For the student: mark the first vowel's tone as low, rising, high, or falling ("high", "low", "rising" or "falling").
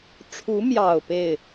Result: rising